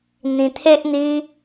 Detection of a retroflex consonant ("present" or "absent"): absent